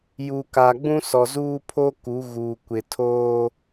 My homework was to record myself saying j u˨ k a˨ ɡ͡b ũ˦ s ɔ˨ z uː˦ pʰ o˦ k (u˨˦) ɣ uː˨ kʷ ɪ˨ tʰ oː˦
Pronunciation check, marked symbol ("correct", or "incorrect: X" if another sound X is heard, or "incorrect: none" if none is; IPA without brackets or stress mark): correct